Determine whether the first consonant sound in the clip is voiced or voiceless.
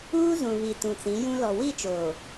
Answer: voiced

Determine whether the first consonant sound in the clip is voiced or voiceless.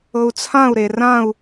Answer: voiceless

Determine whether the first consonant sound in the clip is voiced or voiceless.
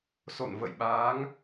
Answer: voiceless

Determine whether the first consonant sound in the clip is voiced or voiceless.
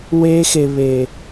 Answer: voiced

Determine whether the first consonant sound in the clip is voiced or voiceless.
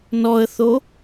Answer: voiced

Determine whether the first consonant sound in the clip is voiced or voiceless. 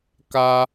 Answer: voiceless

